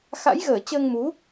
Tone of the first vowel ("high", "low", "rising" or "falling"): rising